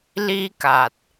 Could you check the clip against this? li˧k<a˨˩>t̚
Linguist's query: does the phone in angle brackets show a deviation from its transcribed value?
no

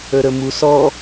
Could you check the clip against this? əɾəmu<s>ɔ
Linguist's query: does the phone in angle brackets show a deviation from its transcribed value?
no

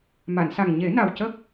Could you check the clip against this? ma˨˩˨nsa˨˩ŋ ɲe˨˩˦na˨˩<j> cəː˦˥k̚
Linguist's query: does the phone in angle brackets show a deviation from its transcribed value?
yes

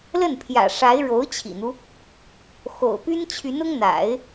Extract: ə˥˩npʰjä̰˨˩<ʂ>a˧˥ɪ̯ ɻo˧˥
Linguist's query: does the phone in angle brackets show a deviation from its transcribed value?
no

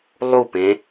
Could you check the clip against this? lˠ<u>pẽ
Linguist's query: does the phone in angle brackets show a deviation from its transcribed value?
no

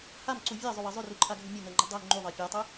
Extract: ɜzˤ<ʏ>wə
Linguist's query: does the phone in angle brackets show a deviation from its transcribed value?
no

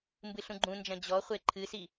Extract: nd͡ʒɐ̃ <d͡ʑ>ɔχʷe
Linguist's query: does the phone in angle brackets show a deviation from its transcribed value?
no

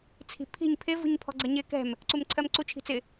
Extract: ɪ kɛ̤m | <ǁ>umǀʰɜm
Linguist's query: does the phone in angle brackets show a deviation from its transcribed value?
yes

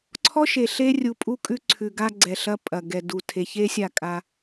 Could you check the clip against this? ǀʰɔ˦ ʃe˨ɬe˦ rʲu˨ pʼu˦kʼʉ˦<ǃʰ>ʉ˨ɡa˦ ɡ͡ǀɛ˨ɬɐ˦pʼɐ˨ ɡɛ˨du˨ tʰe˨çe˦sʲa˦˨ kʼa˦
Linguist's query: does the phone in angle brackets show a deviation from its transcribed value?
yes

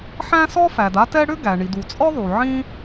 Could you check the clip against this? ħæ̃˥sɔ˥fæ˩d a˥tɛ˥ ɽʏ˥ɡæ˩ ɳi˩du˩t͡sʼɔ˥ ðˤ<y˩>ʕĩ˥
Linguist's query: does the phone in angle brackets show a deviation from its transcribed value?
yes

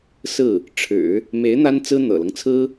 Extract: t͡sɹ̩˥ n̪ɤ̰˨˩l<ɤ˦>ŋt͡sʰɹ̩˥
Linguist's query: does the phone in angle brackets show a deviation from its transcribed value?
no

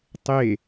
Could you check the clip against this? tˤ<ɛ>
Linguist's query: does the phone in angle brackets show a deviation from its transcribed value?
yes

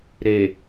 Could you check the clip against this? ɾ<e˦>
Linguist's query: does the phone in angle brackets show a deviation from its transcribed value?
yes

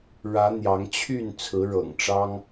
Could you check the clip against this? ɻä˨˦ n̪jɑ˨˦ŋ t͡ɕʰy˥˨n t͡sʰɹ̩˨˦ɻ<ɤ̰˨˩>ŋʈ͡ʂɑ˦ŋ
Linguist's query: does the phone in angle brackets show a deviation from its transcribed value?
no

